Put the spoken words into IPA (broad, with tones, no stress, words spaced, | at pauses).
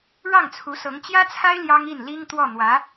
ɻɑ˥˩ŋt͡sʰu˧˥sɤ˧˥ŋ t͡ɕjä˥t͡sʰa˥ɪ̯ ljɑ˥ŋi˥˩n li˥ŋ t̪wɔ˥˩ n̪wä˧˥